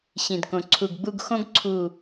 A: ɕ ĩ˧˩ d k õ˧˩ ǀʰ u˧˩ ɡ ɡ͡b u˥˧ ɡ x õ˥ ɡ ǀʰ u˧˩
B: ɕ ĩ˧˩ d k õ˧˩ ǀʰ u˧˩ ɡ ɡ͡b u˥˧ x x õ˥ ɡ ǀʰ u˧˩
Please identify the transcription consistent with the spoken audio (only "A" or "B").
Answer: A